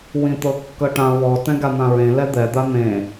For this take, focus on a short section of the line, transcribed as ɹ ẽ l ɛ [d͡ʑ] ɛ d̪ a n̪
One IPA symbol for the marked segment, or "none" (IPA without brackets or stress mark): d̪